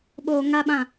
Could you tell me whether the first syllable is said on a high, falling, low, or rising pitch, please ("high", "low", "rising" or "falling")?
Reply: low